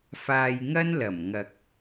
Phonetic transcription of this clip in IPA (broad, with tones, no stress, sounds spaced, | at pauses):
f aː˧ j ŋ ɐ˥ n l ɐ˨˩ m ŋ ɐ˨ k̚